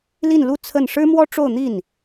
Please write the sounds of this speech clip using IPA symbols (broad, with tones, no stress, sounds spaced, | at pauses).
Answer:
l i˥˧ n l u˥˧ t͡sʰ ə˥˩ n ʂ ɻ̩˥ m w ɔ˥ ʈ͡ʂ o˥˧ ʊ̯ n̪ i˥˩ n